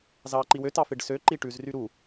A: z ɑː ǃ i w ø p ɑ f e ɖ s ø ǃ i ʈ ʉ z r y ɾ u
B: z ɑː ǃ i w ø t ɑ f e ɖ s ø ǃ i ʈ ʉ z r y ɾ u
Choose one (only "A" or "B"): B